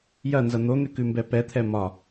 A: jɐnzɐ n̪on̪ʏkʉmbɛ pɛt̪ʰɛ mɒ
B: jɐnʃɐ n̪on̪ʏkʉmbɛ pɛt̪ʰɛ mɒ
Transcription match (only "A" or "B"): A